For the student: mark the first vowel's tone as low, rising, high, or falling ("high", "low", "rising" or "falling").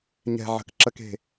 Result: low